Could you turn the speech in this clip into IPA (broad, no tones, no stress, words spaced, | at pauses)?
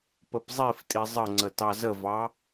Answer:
pəpzˤiftʼi zˤəŋ͡ǀə tɑzəvɑ